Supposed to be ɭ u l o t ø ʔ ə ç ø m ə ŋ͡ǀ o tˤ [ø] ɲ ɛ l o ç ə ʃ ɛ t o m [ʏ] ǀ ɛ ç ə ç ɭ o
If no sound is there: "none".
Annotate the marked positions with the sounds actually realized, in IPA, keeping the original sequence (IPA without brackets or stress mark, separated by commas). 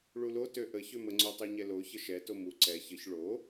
ø, u